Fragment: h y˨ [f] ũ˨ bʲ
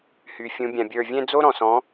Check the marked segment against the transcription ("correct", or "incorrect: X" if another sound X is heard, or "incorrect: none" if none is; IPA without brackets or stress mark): incorrect: fʲ